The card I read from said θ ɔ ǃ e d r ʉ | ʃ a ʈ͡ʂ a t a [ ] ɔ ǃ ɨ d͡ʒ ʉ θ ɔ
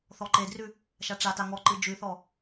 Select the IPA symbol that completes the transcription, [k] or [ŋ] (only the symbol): ŋ